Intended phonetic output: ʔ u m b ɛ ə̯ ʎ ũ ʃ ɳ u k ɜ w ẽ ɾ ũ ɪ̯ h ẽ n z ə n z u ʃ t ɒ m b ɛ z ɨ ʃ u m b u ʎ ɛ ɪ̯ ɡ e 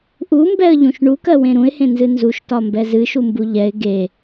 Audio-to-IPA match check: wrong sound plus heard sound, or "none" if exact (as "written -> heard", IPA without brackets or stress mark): ə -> ɨ